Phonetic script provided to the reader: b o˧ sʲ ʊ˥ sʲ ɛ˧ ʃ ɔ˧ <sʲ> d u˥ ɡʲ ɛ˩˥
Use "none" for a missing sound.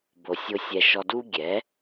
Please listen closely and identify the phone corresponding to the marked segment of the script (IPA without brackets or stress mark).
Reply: none